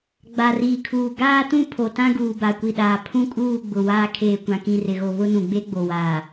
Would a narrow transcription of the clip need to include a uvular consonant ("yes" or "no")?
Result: no